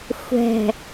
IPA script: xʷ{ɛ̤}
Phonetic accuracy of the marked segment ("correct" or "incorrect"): correct